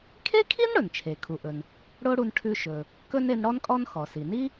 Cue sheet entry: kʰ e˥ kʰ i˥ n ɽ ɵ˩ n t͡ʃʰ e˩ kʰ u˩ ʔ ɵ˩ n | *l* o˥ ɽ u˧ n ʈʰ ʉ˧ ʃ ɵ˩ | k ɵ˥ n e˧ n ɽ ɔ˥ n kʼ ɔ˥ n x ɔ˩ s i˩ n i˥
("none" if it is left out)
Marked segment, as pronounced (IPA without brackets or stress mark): ɽ